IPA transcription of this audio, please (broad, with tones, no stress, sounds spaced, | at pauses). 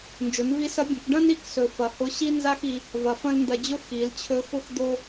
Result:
n d͡ʒ ʊ˩˧ n v i˧˥ s ɐ˧˥ bʲ ɐ̃˩˧ k ɖ ɐ̃˥ n i˧˥ k s ɵ˩ f ɐ˩ h ʊ˧˥ ɕ i˥ n z a˥ x i˧ | v ɐ˩ f ɐ̃˥ l n d ɐ˧ d͡ʑ ʊ˥ x i˩˧ l t͡ɕʰ ɵ˧ x ʊ˥ x d̪ o˥